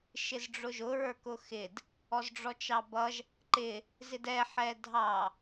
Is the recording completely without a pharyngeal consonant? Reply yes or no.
no